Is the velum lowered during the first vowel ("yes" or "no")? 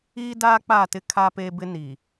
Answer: no